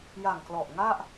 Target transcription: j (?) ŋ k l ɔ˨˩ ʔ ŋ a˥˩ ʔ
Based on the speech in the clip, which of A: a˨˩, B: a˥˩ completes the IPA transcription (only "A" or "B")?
A